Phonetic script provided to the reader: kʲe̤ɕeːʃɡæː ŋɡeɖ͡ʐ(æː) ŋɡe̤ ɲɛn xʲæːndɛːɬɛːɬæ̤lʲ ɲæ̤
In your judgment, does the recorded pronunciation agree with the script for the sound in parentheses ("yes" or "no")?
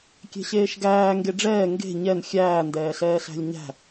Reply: no